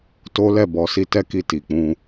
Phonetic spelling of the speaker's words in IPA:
t o˦ l ɛ˦˨ b ɔ˨˦ s i˦ t ɛ˦ k i˧ t i˨ k͡p ũ˧

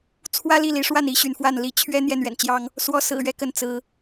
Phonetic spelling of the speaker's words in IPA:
t͡sʰ w ä˦ l i˥˨ l i˨˦ ʂ w a˥˨ n i˦ ɕ y˨ n f w a˥˨ n l i˨˦ t͡ɕʰ ɥ ɛ˦ n̪ j ɛ˥˨ n ɥ ɛ̰˨˩ n t͡ɕ j ɑ˦ ŋ | s w ɔ˨˦ s ɹ̩˨˩ ɥ ɛ˦ k ə˨˦ n t͡s ɹ̩˨˦

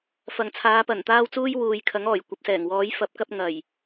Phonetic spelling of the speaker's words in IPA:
f ɐ˨ ŋ t͡sʰ aː˨˧ p ɐ˨˩ n t̪ aː˧ w t͡s uː˧ j w uː˨ j kʰ ɐ˨˥ ŋ ɔː˨˩ j kʷ ɐ˨˥ p̚ s ɛː˨˩ ŋ w ɔː˨˥ j f ɐ˨˥ p̚ k ɐ˧ p̚ ŋ ɐ˨˩ j

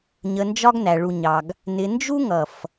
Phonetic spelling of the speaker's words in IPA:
ɲ ə˧ n d͡ʒ ɒ˦ ɡ n æ˨ ɭ u˨ ɲ ɑ˨ ɡ | n ɪ˧ n d͡ʒ u˦ ŋ ʌ˨ f

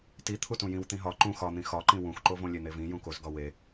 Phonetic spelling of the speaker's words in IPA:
t i t̪ʰ u t ũ j ĩ w t̪ ĩ ɦ ɒ ǃ ũ x ɒ n̪ ĩ x ɒ ǃ ĩ w ũ x ǃ o v õ lʲ e n̪ e v ĩ j ũ k o z ɡ ɒ w e

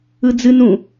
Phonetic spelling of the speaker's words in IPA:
ɯ d͡z ɨ n ũ

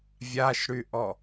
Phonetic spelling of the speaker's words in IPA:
vʲ a ʃ ɽ y ʔ ɔ

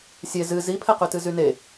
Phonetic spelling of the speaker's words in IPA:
sʲ e z ɨ z i pʰ ɛ q y t ɨ z y n e

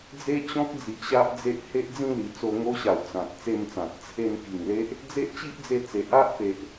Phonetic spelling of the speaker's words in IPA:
d͡z e˦ t͡ɕ ɔ̃˦ k̚ d͡z i˨ ʔ ɕ a˦ ʔ d͡z e˦ ʔ h e˦ ʔ d͡z ĩ˥˧ l i˨˩ t͡s o˧ ŋ o˦ ɕ a˨˩ w t͡s ã˨ t̚ t͡s e˥˧ m t͡s ã˨ t̚ t͡sʰ e˧ n k i˨˩ ŋ l e˦ ʔ | d͡z e˦ ʔ t͡ɕ i˦ ʔ d͡z e˧ t͡s e˨ ʔ a˦ ʔ p e˨ ʔ

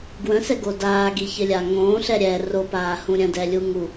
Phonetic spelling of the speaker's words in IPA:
ɡ w ə̃ s ɛ ɡ o d aː ɡ i ç ɘ lʲ a ŋ õː ɬ ɛ ɾʲ ɛ r o p aː h ũ ɾʲ ə̃ d ɛ lʲ u ŋ u

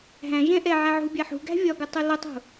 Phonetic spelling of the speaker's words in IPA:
ɦ æ̃ ʒ ɛ̃ ʔ ɛ ʕ æ ʕ ṳ bʲ æ ħ ṳ ɡ æ̤ vʲ ɒ ɡ u tˤ u l ʊ tˤ ṳ

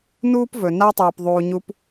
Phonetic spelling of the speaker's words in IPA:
n uː˥ p v ɵ˩ n a˦ tˤ uː˩ p ðˤ uː˨ ɲ u˦ p

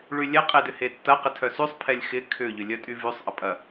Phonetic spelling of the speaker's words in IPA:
ɭ y lʲ ɛ qʼ e d ʏ h e tː ɐ q ɪ tʰ œ s y sˤ pʰ ɛ lʲ x ɪ kʰ ʏ ʎ ʏ lʲ œ tʼ y v y sˤ ʔ ɐ pʼ ɐ

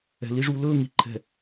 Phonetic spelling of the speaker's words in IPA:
ɛ̤˨ l i˦ ʐ u˦ l ɵː˦ ŋ i˨ ǃʰ ɛ̤˨

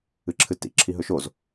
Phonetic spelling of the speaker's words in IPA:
ɨ ǁʰ ɨ t ḭ ǁʰ i ɦ ɵ ʃ o z

